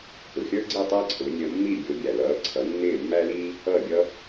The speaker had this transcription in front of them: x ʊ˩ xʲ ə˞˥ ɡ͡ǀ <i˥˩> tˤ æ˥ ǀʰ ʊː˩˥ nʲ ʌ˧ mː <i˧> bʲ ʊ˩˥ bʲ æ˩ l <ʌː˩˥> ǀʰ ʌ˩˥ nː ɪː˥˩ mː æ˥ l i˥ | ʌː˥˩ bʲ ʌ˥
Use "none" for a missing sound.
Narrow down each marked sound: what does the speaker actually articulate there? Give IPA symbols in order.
i˥˩, i˥˩, ʌː˩˥

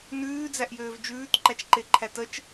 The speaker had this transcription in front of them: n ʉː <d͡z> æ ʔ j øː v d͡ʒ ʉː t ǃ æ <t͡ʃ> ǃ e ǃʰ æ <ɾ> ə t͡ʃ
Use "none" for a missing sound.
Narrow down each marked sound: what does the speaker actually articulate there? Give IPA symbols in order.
d͡z, t͡ʃ, t

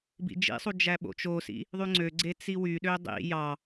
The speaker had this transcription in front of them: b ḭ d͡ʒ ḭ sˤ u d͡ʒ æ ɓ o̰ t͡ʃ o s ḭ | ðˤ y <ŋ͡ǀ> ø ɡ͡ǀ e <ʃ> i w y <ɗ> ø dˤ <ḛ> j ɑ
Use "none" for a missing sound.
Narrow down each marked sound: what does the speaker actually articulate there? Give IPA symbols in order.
ŋ͡ǀ, t͡s, ɗ, ḭ

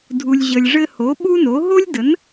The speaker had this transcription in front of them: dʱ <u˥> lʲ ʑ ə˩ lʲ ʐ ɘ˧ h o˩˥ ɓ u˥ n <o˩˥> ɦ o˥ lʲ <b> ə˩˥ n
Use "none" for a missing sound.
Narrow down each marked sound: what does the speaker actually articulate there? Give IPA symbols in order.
u˩, o˩˥, d

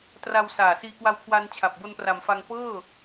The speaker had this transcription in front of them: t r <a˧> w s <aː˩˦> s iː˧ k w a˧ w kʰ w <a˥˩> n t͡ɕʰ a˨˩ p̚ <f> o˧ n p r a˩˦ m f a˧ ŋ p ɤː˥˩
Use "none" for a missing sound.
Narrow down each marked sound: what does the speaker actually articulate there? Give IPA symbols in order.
a˧, aː˨˩, a˧, b

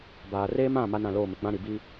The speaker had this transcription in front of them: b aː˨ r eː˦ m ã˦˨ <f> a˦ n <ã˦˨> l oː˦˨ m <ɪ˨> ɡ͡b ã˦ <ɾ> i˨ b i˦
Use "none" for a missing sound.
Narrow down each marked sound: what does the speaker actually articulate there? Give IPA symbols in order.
m, ã˦˨, ɪ˨, ɾ

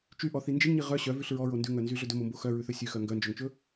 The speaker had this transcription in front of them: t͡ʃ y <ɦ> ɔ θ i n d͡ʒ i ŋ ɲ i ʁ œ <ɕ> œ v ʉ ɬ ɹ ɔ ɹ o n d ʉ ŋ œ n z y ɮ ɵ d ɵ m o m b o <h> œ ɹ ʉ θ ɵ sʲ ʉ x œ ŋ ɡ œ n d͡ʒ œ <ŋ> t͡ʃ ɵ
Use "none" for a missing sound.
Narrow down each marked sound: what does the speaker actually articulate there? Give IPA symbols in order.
ʔ, ɕ, x, ŋ

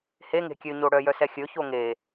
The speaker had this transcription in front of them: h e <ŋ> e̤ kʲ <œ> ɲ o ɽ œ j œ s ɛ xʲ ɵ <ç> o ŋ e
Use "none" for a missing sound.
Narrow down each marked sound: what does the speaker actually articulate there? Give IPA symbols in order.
ŋ, ø, ç

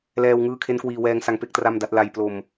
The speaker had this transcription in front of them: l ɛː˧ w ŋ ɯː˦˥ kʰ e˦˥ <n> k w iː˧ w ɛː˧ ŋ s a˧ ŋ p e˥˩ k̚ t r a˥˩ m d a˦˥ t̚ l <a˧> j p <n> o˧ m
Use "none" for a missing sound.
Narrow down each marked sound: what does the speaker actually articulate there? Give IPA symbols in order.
n, a˧, l

